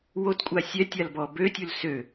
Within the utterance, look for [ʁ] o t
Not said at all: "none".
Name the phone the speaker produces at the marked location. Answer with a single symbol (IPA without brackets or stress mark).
w